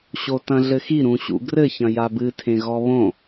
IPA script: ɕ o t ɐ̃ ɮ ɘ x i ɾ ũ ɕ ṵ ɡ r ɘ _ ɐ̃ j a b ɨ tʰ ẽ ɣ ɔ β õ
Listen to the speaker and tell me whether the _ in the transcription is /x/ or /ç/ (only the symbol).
ç